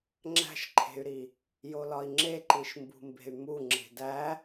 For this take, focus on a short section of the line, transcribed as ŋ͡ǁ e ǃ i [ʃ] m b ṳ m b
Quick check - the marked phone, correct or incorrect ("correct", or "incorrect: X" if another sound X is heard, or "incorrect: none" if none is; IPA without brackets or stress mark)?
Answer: correct